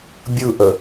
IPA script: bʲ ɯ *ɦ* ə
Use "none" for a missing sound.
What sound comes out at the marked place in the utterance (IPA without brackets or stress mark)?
ʔ